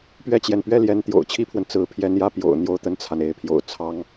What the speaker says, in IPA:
p ɥ ɛ˥˩ t͡ɕ j ɛ˩ n p ɥ ɛ˥ l j ɛ˧˥ n t̪ j o̰˨˩ ʊ̯ t͡ɕʰ i˥ pʰ w ə˨ n t͡s ɹ̩˧˥ pʰ j ɛ˧˥ n j ä˥˩ p j o̰˨˩ ʊ̯ n̪ j o˥˧ ʊ̯ t̪ ə˥˩ n t͡sʰ a˩ n e˧˥ ɪ̯ pʰ j o̰˨˩ ʊ̯ t͡sʰ ɑ˥ ŋ

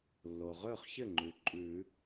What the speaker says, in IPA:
lː o˩ ʁ ɵː˥˩ χ ç ɘ˥˩ ŋ͡ǃ ʉ˩ ǃʼ ʉ˨˩˦

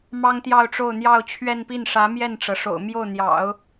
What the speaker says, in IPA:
m ɑ˥ ŋ t̪ j ɑ˥˧ ʊ̯ ʈ͡ʂ o˥˧ ʊ̯ n̪ j ɑ˥˧ ʊ̯ t͡ɕʰ ɥ ɛ˥˧ n p i˥˩ n ʂ ä˧˥ m j ɛ˥˩ n ʈ͡ʂ ɤ˩ ʂ o̰˨˩ ʊ̯ m j o˥˩ ʊ̯ n̪ j ɑ̰˨˩˦ ʊ̯

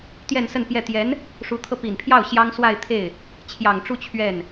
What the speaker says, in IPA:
t̪ j ɛ˥˧ n s ə˥˧ n p j ɛ˥˩ t̪ j ɛ˧˥ n | ʂ u˧˥ t̪ʰ ɤ˧ p i˨˩ n pʰ j ɑ˥˩ ʊ̯ ɕ j ɑ˥ ŋ s w a˥˧ ɪ̯ t̪ʰ e˥˩ ɪ̯ | t͡ɕʰ j ɑ˨˩ ŋ ʈ͡ʂ u˥˧ t͡ɕʰ ɥ ɛ˥˩ n

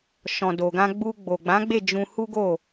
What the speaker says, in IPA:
ʃ ɔ̃˨ d o˨ ɡ ã˧ ɡ͡b u˧ ɡ͡b o˨ ɡ͡b ã˨˦ ɡ͡b e˦˨ d͡ʒ ũ˧ h u˦ ɡ o˦˨

